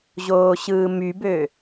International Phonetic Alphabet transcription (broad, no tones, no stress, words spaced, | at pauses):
ʑoːɕɯːmybø